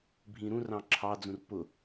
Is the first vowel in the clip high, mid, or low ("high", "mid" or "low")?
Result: high